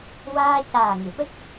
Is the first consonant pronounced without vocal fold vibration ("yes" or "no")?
no